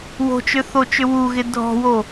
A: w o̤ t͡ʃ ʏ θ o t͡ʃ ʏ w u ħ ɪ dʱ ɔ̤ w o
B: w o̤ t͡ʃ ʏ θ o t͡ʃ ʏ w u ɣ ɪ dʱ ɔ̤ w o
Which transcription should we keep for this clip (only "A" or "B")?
B